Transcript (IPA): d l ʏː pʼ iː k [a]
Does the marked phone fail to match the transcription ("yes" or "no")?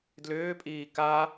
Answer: no